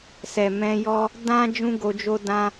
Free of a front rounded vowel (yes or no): yes